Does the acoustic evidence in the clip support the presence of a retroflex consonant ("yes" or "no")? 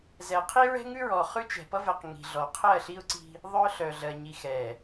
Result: no